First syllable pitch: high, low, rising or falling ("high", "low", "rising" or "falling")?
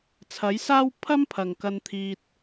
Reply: rising